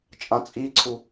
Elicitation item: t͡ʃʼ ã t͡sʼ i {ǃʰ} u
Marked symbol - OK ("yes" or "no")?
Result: no